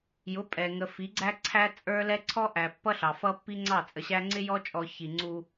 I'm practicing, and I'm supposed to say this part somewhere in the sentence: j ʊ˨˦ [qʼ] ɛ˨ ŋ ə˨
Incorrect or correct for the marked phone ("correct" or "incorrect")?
incorrect